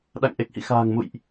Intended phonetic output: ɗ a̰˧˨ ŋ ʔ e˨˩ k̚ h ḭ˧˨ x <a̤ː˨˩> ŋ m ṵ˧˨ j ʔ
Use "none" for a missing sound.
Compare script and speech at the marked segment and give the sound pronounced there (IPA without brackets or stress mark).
a̤ː˨˩